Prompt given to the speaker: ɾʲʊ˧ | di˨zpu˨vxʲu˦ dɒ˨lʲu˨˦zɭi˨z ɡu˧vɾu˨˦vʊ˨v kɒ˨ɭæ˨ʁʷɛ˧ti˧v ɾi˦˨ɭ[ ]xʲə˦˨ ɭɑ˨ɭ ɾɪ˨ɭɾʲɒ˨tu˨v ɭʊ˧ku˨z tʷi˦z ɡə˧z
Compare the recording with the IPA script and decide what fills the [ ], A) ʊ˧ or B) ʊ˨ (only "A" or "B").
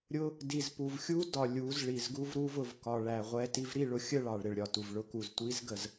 A